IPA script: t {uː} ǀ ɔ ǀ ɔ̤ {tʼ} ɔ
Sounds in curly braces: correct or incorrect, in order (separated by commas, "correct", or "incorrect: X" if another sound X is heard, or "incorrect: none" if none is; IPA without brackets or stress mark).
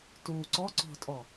correct, correct